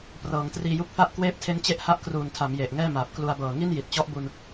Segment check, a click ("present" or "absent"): absent